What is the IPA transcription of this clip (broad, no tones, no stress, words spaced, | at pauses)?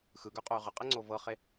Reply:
xɯɡœqʼœy̯ ʁəqʼɛŋ͡ǀo vɤχe